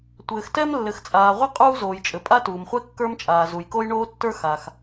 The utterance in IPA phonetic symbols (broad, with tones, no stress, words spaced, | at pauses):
tʷɘː˩xtɛ˥m lːɘ˩xt͡sʼaː˩ʁʷɘ˥ qʼuː˥zoː˩jt͡ʃʼɘ˩ pʼa˥tuː˩mχʷɛ˥ kːə˞˥mt͡ʃʼaː˩ zu˩jko˥jɳoː˥tːə˞˥ xa˩x